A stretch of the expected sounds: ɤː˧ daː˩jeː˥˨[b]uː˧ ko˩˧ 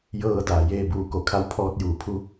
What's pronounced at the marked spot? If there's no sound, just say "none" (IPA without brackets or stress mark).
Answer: b